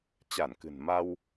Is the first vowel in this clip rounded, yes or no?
no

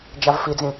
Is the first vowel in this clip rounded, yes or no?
no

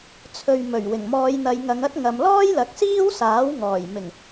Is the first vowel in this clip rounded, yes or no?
yes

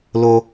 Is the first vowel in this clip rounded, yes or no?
yes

